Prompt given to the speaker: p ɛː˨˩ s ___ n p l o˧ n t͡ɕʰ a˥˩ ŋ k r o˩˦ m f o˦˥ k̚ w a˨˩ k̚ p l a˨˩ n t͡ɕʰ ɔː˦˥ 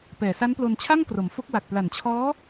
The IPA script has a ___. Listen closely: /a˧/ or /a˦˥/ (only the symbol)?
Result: a˦˥